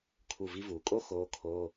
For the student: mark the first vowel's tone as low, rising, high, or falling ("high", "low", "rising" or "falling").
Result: falling